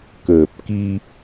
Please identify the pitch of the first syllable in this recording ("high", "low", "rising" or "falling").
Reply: low